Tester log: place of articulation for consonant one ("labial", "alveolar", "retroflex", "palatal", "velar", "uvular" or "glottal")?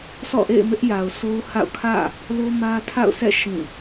alveolar